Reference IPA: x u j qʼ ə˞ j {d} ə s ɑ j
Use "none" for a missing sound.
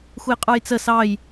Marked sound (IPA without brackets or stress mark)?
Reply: t͡s